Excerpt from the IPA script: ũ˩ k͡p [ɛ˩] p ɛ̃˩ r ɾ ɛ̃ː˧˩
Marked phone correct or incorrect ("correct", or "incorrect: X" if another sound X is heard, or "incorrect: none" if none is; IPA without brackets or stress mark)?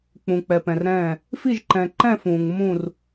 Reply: correct